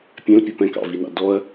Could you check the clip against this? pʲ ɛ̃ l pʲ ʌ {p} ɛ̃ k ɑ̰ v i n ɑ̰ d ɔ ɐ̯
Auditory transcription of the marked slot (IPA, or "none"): p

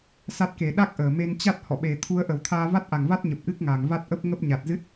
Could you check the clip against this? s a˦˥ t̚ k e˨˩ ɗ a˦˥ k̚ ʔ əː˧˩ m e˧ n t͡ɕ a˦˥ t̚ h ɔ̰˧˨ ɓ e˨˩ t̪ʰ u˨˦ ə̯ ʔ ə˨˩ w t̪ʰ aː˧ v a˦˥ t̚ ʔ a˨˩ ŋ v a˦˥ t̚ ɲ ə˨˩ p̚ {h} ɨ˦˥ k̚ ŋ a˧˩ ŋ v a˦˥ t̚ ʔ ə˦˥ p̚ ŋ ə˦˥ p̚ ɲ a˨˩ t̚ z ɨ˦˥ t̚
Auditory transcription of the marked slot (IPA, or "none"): ʔ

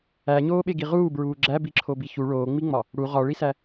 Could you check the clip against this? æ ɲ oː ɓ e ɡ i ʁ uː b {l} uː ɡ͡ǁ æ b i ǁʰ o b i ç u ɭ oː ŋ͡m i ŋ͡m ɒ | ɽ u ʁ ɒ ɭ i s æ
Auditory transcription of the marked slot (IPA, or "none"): ɹ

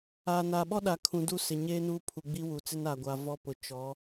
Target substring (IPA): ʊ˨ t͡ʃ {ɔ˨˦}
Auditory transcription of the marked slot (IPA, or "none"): ɔ˨˦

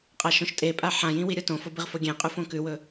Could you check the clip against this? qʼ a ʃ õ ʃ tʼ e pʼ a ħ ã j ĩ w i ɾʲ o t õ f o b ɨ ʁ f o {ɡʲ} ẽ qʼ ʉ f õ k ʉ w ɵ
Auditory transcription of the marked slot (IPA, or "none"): ɡʲ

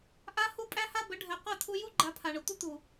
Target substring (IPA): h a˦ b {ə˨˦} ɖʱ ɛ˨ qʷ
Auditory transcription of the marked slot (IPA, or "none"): ə˨˦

